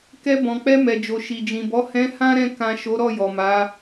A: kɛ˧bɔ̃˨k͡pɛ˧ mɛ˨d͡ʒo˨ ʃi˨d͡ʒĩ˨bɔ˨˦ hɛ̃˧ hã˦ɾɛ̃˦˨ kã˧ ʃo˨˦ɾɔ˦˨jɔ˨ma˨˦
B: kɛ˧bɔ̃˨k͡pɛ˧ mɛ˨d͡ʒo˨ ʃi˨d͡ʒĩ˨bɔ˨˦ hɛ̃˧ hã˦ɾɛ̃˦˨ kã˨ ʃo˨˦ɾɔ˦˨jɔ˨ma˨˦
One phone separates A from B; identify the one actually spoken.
B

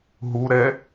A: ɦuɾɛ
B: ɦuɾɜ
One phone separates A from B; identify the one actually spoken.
A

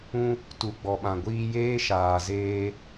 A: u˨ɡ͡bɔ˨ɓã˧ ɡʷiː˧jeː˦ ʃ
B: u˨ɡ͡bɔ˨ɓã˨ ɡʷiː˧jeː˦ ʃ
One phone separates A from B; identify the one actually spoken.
B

